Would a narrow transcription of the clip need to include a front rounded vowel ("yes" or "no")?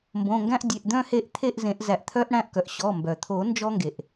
yes